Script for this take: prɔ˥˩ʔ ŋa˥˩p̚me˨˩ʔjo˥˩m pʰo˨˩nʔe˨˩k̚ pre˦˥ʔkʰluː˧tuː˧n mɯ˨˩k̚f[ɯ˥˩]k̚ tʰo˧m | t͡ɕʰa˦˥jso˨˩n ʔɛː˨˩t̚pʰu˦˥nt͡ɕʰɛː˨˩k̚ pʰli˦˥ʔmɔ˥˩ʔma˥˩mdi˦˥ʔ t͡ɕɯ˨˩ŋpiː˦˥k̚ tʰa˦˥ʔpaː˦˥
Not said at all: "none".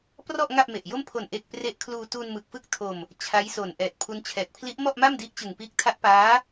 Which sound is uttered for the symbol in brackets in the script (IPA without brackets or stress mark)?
ɯ˥˩